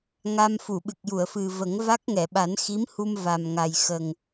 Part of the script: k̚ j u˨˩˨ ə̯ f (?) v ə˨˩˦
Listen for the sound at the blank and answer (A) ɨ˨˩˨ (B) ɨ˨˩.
B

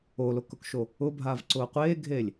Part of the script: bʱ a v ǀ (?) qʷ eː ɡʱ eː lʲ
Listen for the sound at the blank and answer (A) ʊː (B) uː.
A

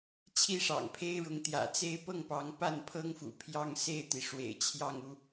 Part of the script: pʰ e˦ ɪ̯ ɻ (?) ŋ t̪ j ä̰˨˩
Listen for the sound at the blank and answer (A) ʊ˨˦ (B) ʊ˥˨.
A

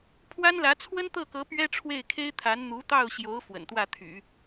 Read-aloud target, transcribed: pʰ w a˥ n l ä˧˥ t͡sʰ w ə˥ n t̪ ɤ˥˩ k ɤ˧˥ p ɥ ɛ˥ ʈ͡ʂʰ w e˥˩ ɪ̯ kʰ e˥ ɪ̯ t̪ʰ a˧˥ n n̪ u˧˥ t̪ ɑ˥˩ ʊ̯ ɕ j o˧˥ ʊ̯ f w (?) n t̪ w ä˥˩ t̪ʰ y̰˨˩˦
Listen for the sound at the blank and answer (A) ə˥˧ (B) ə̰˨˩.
B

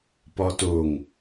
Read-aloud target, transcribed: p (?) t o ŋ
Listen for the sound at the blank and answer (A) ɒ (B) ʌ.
A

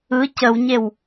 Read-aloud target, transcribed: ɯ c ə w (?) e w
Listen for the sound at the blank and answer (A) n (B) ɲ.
B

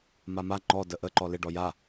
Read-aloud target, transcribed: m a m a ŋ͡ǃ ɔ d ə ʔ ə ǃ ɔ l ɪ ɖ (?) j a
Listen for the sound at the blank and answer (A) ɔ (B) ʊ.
A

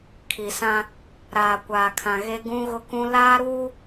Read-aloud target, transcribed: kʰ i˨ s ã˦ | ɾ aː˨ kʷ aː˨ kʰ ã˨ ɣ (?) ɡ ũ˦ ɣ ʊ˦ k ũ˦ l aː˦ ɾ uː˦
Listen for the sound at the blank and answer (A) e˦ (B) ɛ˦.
A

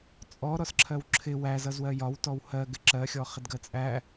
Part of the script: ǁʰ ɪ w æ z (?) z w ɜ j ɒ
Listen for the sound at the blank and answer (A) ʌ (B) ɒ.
A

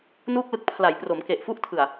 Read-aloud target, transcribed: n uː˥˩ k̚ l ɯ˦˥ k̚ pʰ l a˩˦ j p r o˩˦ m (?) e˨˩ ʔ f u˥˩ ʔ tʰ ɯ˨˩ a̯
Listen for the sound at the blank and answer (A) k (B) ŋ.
A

